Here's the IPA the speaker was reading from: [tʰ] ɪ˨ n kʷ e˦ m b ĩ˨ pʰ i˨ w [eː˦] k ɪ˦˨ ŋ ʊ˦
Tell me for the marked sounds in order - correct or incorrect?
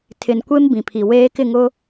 correct, correct

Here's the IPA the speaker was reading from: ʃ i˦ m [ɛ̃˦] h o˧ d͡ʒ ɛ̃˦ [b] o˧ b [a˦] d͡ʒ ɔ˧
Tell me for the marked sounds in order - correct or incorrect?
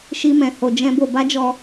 incorrect: ɛ̃˧, correct, correct

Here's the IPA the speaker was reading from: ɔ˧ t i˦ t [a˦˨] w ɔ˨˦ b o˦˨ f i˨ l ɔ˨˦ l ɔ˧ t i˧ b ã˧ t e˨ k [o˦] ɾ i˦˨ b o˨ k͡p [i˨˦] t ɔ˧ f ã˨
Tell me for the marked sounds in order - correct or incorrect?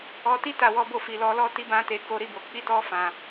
correct, incorrect: o˨˦, correct

